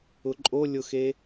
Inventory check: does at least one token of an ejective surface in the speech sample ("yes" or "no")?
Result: yes